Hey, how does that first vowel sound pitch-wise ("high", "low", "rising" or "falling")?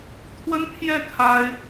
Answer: high